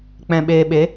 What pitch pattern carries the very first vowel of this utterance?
low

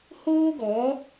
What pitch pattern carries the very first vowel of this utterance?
high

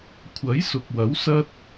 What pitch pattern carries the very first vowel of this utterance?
rising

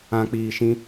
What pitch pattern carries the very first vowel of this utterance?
low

